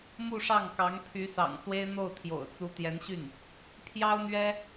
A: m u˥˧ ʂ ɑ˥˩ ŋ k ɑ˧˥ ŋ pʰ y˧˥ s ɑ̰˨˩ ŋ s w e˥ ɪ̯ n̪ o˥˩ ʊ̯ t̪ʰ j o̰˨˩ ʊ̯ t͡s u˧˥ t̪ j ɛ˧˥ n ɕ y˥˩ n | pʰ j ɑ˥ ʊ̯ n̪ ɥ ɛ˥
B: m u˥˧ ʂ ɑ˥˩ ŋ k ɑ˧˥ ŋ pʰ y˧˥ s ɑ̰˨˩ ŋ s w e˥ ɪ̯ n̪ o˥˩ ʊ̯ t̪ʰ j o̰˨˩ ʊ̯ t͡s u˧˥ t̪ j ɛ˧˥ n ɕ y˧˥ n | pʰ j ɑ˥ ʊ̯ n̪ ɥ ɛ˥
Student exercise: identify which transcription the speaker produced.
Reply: A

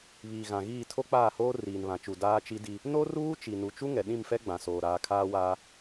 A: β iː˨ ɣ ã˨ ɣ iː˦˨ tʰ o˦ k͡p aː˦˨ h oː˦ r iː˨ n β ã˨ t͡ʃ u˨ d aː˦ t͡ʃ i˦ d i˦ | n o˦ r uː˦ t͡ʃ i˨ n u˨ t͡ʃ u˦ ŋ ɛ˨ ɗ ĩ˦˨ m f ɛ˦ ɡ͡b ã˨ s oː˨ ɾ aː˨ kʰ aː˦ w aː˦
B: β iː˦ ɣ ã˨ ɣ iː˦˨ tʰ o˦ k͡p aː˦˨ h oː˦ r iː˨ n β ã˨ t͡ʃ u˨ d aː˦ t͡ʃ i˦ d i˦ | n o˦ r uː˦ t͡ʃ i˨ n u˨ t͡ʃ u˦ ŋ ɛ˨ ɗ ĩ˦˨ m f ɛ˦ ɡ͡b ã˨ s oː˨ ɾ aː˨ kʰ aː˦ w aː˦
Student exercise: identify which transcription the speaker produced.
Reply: A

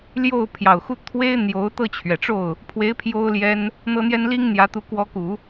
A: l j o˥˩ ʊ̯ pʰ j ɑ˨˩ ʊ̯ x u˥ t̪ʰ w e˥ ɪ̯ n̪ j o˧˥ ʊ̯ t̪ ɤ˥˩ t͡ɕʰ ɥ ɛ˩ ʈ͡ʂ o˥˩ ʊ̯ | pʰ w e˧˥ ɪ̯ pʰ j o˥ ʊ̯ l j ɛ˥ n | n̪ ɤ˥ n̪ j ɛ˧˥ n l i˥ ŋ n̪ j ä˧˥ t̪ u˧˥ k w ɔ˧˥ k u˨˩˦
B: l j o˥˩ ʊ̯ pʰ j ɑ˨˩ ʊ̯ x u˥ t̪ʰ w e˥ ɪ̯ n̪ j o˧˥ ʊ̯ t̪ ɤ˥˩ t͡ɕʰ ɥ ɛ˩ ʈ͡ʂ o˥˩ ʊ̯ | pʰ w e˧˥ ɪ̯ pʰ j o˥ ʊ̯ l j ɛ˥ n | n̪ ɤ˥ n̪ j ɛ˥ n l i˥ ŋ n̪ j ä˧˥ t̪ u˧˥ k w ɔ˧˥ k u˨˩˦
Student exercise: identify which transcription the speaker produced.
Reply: B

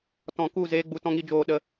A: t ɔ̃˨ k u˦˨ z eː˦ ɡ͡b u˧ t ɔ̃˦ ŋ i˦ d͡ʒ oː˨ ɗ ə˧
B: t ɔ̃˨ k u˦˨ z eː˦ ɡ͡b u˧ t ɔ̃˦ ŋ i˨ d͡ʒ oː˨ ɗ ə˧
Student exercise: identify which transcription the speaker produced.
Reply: A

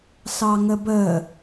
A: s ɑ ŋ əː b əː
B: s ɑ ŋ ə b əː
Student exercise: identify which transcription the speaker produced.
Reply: B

